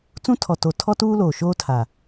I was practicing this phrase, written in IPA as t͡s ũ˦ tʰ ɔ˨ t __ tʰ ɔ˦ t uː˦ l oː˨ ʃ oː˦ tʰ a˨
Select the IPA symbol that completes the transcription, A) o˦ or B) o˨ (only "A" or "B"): B